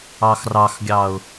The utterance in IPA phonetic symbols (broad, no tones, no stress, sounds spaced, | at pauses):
ɑ x r ɑ x ɡʲ ɑ ʊ̯